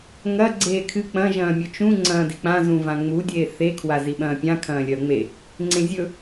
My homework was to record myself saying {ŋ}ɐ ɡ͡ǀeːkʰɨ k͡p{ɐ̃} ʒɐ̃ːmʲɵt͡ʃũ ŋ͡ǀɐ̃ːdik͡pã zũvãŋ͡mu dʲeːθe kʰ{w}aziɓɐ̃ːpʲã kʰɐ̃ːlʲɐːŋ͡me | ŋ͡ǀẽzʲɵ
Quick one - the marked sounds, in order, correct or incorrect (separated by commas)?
correct, correct, correct